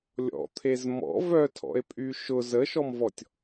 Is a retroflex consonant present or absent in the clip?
absent